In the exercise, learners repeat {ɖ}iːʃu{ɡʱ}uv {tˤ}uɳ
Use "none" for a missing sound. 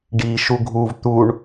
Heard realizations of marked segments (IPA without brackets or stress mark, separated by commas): ɖ, ɡʱ, t̪